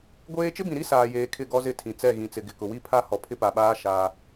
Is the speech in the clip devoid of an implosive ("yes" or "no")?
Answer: no